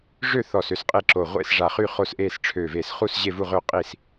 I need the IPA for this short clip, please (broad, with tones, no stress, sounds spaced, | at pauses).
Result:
ʐ ø˥˨ θ ɔ˧˩ s ø˥˨ s qʼ e˥˨ ǁ o˧˩ ʁʷ ḛ˥˨ s ʐ a˧˩ χ y˥˨ χ o˥˨ s ʔ e˥˨ s ʈ͡ʂʰ ø˧˩ v e˧˩ s χ u˥˨ s ʑ e˥˨ v u˥˨ ʁ ø˥˨ qʼ i˥˨ s